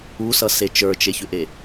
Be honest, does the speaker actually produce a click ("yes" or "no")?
no